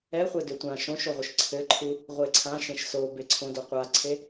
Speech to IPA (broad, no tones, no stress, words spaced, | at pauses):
ɛχʷɛ døtʷã ʃõʃoʁʷɯʃ ǀʰɘǃʰu | ʁʷeǀʰãʃẽʃ so beǀʰõ doqʷaǀʰe